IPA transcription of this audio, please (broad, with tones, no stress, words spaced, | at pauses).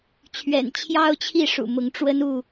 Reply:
t͡ɕʰɥɛ̰˨˩nt͡ɕʰjɑ˦ʊ̯t͡ɕʰi˥˨ ʂṵ˨˩mʊ˨˦ŋʈ͡ʂwə˦n u˥˨